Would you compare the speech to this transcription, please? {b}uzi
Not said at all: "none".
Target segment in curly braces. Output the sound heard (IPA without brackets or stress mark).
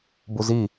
b